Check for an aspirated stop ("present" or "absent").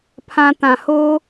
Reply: present